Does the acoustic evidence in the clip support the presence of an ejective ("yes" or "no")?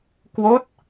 no